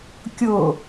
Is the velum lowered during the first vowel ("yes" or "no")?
no